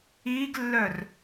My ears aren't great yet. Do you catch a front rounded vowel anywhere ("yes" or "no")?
yes